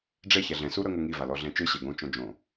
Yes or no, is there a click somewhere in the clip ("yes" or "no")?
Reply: no